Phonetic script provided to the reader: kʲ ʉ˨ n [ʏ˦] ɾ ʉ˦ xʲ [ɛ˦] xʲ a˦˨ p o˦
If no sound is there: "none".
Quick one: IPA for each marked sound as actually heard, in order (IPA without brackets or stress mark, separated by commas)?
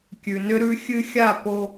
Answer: ʏ˦, ɨ˦